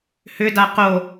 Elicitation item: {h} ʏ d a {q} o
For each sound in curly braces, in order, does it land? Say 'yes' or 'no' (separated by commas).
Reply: yes, yes